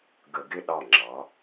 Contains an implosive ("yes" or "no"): yes